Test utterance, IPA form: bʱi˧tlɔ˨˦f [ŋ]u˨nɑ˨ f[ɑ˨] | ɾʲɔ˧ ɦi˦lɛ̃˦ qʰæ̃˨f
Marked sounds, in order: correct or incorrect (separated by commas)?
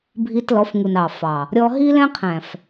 correct, correct